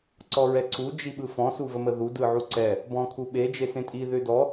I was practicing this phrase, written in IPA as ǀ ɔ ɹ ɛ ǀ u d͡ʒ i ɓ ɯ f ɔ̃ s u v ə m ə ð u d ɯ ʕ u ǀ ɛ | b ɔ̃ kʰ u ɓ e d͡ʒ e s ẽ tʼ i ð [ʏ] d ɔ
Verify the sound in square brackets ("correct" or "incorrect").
correct